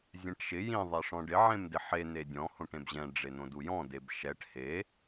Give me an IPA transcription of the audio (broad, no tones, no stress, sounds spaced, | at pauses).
zʲ ɛ̃ ʈ ʃ ɪ j ĩ ðˤ ɛ ʂ ɔ̃ ɖ ɪ ʕ ẽ m d ɪ ħ e n̪ e dʲ ɔ̃ h õ ʈ ẽ b ʑ ɛ̃ ɖ͡ʐ e n̪ õ d u j ɔ̃ d e b ʃ ɛ ʈ h e